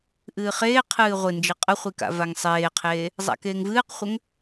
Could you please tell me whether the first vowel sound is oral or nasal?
oral